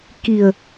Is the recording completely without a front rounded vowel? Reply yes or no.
yes